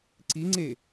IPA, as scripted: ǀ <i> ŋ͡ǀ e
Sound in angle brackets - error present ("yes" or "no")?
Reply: no